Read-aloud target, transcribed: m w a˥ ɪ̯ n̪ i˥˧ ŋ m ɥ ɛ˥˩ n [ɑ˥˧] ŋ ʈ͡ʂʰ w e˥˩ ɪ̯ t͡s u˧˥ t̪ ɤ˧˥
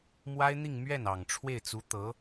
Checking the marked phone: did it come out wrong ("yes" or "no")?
yes